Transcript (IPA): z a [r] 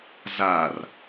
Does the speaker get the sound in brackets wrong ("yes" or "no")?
no